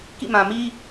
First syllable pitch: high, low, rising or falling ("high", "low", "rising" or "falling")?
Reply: falling